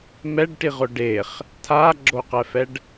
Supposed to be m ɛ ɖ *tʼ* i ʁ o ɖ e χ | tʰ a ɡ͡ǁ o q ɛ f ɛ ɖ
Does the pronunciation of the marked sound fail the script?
yes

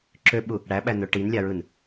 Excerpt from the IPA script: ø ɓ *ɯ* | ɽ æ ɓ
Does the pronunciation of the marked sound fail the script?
yes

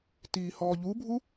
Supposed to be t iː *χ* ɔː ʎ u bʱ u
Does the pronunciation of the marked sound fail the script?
yes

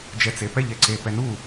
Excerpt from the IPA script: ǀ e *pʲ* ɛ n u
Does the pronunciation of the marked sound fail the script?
yes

